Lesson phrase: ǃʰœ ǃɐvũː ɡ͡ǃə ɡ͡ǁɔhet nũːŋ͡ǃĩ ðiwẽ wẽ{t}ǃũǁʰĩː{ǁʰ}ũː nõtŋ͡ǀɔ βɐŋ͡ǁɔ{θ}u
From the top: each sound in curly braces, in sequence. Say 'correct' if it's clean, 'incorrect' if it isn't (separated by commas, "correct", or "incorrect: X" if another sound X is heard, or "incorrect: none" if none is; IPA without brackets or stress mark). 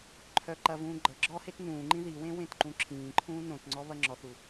correct, incorrect: ǃʰ, correct